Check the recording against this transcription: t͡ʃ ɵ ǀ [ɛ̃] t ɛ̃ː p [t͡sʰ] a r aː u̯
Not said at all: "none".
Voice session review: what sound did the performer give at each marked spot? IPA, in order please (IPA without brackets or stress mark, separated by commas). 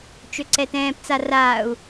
ɛ, t͡s